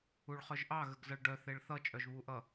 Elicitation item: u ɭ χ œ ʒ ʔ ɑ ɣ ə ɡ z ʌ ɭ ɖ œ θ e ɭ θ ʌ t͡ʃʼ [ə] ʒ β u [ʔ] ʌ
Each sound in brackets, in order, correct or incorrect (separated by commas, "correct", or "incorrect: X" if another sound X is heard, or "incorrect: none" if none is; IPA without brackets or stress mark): incorrect: œ, correct